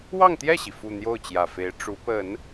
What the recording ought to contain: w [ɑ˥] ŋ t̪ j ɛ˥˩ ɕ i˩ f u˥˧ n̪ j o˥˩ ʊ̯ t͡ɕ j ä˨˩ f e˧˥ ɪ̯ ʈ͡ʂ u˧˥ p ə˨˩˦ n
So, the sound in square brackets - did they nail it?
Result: no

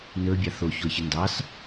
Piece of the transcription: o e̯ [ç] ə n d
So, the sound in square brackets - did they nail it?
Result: yes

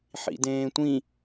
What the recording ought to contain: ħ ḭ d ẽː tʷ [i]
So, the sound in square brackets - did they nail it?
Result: no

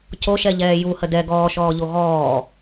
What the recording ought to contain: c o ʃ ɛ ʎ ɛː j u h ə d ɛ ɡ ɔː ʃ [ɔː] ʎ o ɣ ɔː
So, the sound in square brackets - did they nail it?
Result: yes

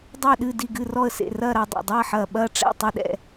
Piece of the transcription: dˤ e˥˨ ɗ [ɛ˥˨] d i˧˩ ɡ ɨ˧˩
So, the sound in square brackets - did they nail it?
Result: no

